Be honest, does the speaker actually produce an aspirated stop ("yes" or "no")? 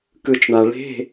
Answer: no